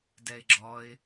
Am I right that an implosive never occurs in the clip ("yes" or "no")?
yes